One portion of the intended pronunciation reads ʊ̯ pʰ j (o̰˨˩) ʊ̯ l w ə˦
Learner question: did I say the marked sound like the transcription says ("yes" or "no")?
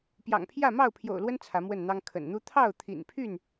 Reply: yes